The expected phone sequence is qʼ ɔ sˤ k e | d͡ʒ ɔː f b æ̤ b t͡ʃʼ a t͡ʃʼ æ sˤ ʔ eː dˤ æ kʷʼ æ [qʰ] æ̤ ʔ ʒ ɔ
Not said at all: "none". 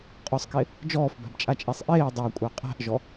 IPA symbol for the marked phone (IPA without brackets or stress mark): qʼ